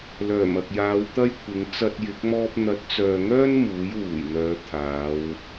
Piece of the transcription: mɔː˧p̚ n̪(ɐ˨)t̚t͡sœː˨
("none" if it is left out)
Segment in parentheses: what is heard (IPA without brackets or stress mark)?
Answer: ɐ˨˥